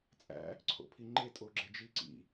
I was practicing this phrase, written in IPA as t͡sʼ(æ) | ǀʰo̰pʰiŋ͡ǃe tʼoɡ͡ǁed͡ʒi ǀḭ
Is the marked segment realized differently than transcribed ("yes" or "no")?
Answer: yes